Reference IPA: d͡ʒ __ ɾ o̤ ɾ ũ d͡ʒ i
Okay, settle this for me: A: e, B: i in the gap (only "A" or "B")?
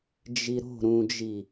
B